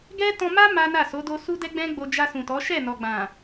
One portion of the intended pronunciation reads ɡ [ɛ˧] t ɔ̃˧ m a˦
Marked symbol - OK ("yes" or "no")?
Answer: no